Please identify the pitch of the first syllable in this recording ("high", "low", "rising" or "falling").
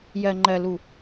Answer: low